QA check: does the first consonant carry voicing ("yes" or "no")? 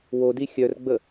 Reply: yes